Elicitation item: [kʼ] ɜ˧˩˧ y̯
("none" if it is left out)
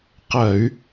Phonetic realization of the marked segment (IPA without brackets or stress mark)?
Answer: q